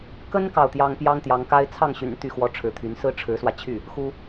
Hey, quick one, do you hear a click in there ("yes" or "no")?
no